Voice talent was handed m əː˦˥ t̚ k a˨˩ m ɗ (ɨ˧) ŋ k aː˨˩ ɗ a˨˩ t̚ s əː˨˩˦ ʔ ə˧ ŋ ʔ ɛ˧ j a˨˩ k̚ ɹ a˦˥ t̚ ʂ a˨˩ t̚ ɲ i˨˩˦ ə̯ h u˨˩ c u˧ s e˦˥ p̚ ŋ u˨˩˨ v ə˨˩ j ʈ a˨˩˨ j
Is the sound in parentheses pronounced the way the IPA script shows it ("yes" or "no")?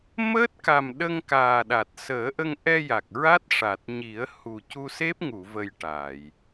no